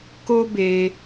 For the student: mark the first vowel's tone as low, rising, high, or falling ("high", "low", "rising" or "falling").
high